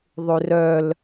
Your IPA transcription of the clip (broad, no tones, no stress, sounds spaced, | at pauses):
ðˤ ʉ r œ l